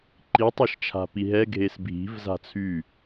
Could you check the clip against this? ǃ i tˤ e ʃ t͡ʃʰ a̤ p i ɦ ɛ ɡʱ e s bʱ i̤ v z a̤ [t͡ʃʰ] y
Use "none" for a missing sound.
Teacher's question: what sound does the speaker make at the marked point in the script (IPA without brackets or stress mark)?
t͡sʰ